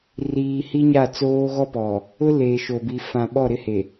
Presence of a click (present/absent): absent